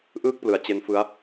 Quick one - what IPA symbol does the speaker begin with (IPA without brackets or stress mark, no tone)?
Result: ʔ